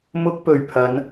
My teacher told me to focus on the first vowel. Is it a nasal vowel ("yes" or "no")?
no